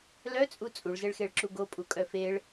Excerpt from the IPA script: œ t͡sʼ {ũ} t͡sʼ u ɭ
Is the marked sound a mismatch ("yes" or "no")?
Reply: yes